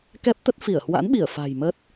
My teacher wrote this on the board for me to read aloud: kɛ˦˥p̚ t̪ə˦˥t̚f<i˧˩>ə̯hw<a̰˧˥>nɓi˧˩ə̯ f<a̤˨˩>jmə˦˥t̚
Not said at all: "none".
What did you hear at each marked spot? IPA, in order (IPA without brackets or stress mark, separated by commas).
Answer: i˧˩, a̰˧˥, a̤˨˩